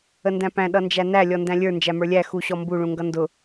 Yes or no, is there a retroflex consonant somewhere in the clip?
yes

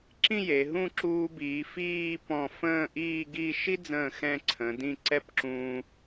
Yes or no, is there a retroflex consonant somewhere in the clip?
no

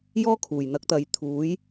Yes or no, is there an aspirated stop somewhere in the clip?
yes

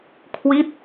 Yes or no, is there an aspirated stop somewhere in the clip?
yes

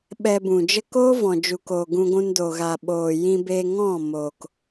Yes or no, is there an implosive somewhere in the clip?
yes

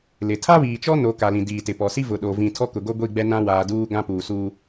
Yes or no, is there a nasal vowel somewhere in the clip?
yes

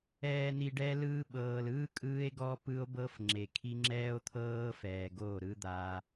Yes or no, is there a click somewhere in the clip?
yes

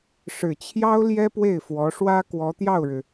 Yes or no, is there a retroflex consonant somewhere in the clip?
yes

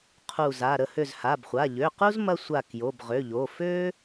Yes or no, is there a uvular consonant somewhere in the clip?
yes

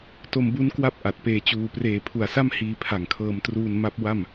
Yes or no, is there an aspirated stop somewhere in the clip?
yes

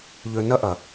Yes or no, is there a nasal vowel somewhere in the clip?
no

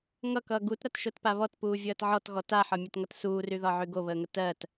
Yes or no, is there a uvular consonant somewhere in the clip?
no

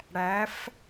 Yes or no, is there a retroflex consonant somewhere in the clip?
yes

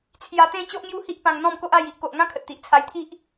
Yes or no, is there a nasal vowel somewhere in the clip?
yes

